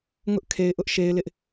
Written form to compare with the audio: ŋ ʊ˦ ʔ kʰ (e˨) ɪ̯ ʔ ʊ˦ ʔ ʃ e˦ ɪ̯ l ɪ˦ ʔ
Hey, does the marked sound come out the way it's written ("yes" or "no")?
yes